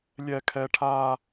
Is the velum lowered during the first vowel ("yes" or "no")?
no